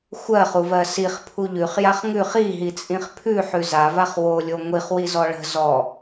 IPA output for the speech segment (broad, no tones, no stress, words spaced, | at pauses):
xʷɜχuvɜ siχpʰu ʎʉχjaχ ŋʉχ iɦit͡sʼĩχ pʰʉħʉ zavaχ wolʲo ŋʷiχwizɔ ɭə̤ zɔ